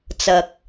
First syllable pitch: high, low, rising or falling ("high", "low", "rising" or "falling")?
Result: low